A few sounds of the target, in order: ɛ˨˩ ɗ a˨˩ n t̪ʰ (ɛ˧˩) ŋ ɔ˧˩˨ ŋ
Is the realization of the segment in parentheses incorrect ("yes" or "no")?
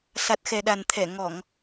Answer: no